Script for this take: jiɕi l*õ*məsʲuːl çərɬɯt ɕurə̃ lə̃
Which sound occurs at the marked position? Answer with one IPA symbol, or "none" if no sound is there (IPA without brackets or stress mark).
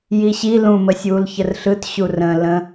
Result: ũ